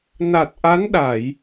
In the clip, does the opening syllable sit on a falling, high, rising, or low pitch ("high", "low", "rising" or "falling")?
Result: low